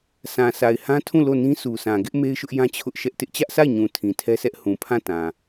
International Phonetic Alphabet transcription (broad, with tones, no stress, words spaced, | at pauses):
sʰã˨sʰa˨ɪ̯hã˦tʰũ˦˨ lo˦˨nĩ˦su˨sã˨ ɡɪ˦ʔ me˦ɪ̯ʃʊ˦ʔjã˦ t͡ɕʰʊ˦ʔʃɛ˦ʔ tɪ˦ʔt͡ɕä˦ʔsʰa˦˨ɪ̯ɲũ˨ tʰĩ˨tʰɛ˦sʰɛ˦ʔ hũ˨pʰã˦˨tã˨